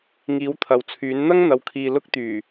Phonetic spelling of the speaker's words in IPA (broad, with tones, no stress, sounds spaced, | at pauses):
ŋ iː˨˥ w t̪ʰ ɐ˨ w t͡sʰ yː˨˥ n n̪ ɐ˥ ŋ n̪ ɐ˨ w kʰ iː˨ l ʊ˥ k̚ t̪ yː˨˩